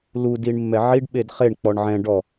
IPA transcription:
lu diɳmːɛʕiɖ ɓedχeɳ k͡pɔɳʕɛ̃ ɖɔ

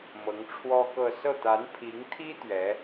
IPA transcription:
mɤ˧˥ŋʈ͡ʂʰwɔ˥kɤ˥˧ sɤ˥˩t̪a˧˥n pʰi˧˥ŋt̪ʰi˥ t̪ɥɛ˧˥

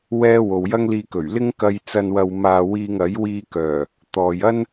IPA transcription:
wɛː˥ wo˨wjɐ˥ŋliː˧ kɵ˨˩ɥlɪ˥ŋkɐ˧jt͡sɐ˧n wɐ˧w maː˧wiː˧ŋɐ˨˥j wiː˧kœː˨˩ | t̪ɔː˨jɐ˥n

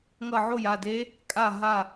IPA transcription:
ŋʌ˥˩ ʕo˥˩ja˥˩de˦˥ | kʼa˥˩ɦa˥˩

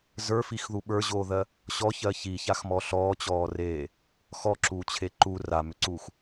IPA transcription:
zə˞fixðu ɓə˞ʑoːðɜ | ɕɔçɜ çiçaxmɔ ɬɔːt͡ɕɔːreː | xɔǁuːt͡ɕʰe ǃu ramʏǀuːx

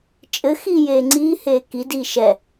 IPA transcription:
t͡ʃʼɘ xiːjeːŋ͡ǀiː heːki diːʃɛ

